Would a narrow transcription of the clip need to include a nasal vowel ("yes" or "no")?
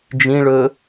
yes